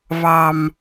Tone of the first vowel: low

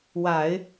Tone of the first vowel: low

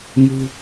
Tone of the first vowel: low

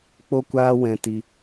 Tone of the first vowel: high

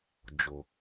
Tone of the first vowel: low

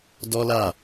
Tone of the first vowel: high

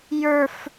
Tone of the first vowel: high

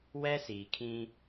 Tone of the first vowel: high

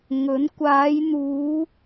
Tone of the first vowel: rising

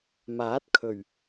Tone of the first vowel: rising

